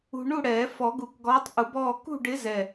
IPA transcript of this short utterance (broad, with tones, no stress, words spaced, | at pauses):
ṳ˧ ɳu˥˨ ɽɛː˨˩˦ fɔ˨˩˦ɡu˨˩kɡɔː˨˥tˤ ʔu˨˩˦bɔː˥˨ kṳ˥˨ɖɪ˨˥ zɛ˨˩